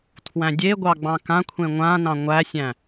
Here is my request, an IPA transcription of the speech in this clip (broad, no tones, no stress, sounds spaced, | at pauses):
tʰ w æ̃ dʲ e ɡʷ ɑ ɡ͡b ɑ̃ k ã kʷʰ ẽ ŋʷ ã n ɑ̃ ŋʷ æ sʲ æ̃